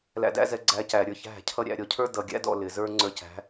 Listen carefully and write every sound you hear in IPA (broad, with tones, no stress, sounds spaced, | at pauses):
l æ̰˧ d æ̰˦ z ɛ˧ ɡ͡ǀ æ˧ c æ˨ ɾʲ ə˞˧ ç æ̤˦˨ cʰ ʌ˦ ɾʲ æ̰˧ ɾʲ ɔ˧ cʰ ə˞˦ d ʌ˨ ɡʲ æ̰˦ d ɔ̰˦˨ l ɪ˨ z ə˞˦ ŋ͡ǀ ə˞˧ c æ̤˨˦